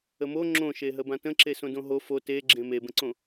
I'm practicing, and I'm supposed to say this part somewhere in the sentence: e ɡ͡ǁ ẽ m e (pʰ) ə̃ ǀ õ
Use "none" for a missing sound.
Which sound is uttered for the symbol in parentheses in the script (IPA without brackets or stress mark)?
b